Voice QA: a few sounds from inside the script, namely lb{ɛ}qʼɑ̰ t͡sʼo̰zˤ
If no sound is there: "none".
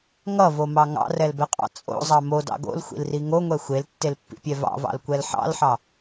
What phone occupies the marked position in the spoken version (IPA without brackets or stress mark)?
ɛ